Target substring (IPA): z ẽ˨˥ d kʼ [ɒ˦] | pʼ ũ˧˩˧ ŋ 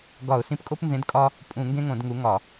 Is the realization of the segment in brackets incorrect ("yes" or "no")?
no